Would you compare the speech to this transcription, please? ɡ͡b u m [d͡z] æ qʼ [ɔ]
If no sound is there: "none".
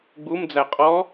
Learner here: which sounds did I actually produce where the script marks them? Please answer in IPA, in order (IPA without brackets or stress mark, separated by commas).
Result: d͡z, ɔ